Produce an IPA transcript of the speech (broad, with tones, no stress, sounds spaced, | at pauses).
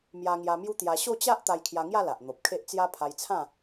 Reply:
m j a˧ ŋ j a˧ m j u˦ t̪ j a˧ ɕ o˥˧ t͡ɕ a˦ ʔ t̪ a˧ j kʰ j a˧ ŋ j a˥˧ l a˨ ʔ n̪ o˨ p̚ kʰ e˦ ʔ t͡s j a˧ pʰ a˧ j t͡sʰ ã˥˧